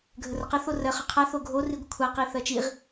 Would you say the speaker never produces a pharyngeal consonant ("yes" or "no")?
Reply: yes